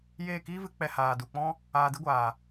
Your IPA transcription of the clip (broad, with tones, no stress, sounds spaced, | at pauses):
j eː˦˨ k iː˦ v ɨ˨˦ k͡p ɛ˧ h aː˨ d u˨ k͡p ɔ̃˦ | aː˧ d ɨ˦ ɡʷ aː˨